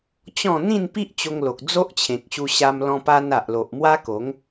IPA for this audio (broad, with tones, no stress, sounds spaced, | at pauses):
t͡ɕ ɔ̃˥˧ n̪ ĩ˥˧ n p i˦ ʔ t͡ɕ o˧ ŋ l o˨ k̚ d͡z o˦ ʔ t͡ɕʰ ẽ˨ k̚ ɕ u˧ ɕ a˧ m l ɔ̃˧ p a˧ n a˨ ʔ l o˨ ʔ m w a˦ k o˨˦ ŋ